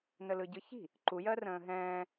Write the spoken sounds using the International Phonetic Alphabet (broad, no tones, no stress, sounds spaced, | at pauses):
n ə l ɯ ɟ ɯ ç i̤ | ǃ u j ɜ r ə̃ː ɦ ɛ̃ː